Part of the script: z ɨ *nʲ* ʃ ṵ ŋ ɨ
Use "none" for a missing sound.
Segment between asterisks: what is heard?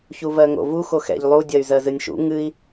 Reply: nʲ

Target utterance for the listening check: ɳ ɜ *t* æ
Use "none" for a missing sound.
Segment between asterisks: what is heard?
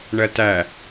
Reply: t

